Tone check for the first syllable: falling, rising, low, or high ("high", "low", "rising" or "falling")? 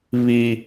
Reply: high